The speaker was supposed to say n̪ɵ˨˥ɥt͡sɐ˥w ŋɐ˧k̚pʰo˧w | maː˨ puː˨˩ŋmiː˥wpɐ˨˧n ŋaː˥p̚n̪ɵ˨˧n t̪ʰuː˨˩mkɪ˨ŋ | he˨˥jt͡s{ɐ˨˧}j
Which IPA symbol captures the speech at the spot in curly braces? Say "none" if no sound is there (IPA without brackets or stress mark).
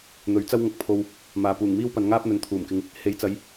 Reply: ɐ˨˧